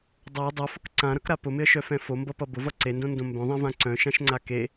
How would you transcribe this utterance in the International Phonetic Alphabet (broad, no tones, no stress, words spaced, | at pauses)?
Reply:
dˤa dˤœfʊk ǀãɾʌkɾa pʊmɪə̯ʃœfɛ̃ fombʌpʌ bʊvʌ ǀendõndõ mbœ̃ðˤɛ̃vã ǀœ̃ʃãʃŋ͡ǀa ke